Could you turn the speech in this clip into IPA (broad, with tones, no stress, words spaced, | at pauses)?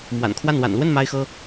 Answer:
mwa̰˨˩nkʰwa˥˩n wa̰˨˩nlwə˥˩n ma˥ɪ̯xɤ˥